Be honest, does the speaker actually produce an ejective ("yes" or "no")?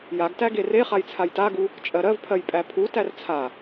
yes